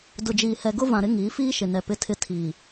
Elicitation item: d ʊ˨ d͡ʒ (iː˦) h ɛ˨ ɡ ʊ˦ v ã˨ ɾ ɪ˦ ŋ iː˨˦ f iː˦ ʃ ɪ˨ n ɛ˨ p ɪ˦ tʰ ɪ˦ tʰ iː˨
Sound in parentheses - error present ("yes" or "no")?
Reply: yes